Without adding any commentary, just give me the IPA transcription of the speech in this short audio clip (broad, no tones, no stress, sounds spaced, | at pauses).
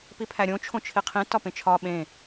p i pʰ æ ɾʲ õ t͡ʃʰ õ t͡ʃʰ i qʰ ĩ t ɒ p ẽ t͡ʃʰ ɒ ɓ ẽ